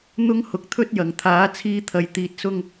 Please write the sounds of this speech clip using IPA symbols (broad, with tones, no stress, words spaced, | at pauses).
n̪ʊ˥ŋ hʊ˨k̚t̪ʰɵ˥t̚jɐ˨˩ŋt̪ʰaː˨˥ t͡sʰiː˧t̪ʰɐ˨j t̪iː˧t̚sʊ˥ŋ